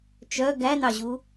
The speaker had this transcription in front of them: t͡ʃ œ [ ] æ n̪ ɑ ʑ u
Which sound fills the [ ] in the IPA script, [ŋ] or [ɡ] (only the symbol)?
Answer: ɡ